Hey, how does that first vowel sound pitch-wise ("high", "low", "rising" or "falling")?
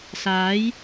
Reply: rising